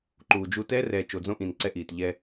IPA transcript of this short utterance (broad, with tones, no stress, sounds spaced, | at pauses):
ǃ uː˨ d͡ʒ u˦ t ɛː˦ r ɛː˨ t͡ʃ o˨ d͡z õ˦ ʔ ĩ˨ n ǀ ɛ˦ ʔ iː˨ t ʎ ɛ˦